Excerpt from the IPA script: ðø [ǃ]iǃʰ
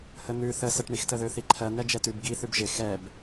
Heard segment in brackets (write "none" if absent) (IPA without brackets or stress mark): θ